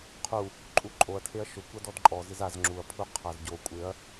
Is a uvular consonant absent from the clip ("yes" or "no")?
no